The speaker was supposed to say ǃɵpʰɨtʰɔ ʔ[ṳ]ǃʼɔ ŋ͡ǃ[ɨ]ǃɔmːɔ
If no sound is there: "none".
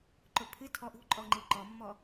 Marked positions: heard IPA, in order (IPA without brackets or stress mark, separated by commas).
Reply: ṳ, ɨ